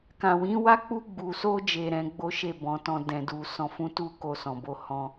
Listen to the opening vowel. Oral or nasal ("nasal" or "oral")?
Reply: nasal